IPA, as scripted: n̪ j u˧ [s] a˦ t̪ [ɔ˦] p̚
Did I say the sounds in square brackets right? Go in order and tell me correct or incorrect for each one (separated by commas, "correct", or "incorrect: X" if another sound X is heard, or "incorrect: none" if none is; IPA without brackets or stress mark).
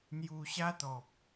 incorrect: ɕ, incorrect: ɔ˨